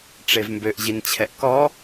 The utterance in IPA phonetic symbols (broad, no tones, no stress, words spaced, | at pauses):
ʈ͡ʂevmbøʔ ʑint͡ɕʰɛʔkɔ